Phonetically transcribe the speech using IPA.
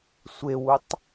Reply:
sʷewutˤ

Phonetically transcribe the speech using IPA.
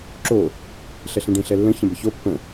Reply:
ǁo | ɬɛɬẽɖẽ ɬɛlːə̃ çə̃bəço pːə̃

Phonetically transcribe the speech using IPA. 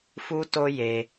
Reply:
fu˦to˦ je˧

